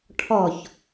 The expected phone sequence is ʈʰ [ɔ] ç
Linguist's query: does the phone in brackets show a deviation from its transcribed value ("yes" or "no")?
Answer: no